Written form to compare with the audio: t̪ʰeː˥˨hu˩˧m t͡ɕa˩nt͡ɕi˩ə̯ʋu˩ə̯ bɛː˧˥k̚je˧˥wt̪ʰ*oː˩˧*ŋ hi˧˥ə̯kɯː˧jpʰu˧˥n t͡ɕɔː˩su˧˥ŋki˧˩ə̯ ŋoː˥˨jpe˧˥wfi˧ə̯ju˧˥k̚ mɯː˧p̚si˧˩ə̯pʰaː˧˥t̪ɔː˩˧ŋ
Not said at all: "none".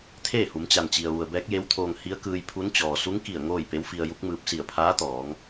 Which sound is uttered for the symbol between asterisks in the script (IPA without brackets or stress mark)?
oː˧